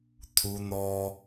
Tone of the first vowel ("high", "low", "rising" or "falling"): high